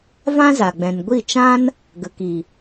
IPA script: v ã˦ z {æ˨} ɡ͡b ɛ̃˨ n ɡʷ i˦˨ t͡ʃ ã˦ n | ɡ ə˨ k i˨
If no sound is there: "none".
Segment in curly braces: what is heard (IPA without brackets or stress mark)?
a˨